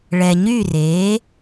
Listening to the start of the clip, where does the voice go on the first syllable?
low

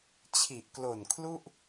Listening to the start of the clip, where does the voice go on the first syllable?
low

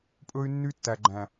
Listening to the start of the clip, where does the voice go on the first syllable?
high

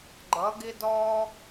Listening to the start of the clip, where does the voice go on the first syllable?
rising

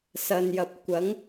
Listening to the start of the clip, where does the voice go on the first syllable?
low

